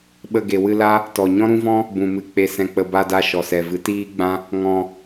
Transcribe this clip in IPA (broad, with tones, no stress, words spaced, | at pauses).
ɓə˧ ɡe˨wɨ˧la˦ | tɔ˨ ɲɔ̃˦ɾũ˦vɔ̃˦ | bũ˨mɨ˨ k͡pe˨sɛ̃˨k͡pə˨ ba˧da˧ʃɔ˨ sɛ˨vɨ˨˦ tiː˦ɡ͡bã˦ | ŋɔ̃˧